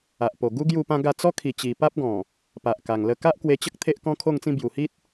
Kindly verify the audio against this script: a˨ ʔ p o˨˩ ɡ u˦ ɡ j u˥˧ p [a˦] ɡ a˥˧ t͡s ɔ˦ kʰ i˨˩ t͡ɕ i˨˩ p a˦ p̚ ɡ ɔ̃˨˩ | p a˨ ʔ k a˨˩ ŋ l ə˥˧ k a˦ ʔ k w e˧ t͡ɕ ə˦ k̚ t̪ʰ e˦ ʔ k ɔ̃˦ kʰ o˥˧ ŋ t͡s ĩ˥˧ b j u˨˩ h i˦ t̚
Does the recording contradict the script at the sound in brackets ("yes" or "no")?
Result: yes